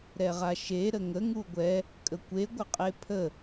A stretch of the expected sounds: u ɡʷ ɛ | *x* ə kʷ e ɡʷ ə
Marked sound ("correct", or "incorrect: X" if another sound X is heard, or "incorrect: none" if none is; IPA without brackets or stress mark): incorrect: kʼ